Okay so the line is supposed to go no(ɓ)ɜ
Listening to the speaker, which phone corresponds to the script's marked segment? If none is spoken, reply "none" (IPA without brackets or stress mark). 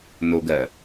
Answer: ɡ